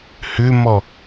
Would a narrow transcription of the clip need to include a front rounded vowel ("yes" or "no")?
yes